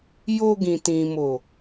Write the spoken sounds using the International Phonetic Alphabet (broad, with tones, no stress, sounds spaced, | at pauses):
j o˧ ɡ ĩ˨ t ĩ˨ m o˨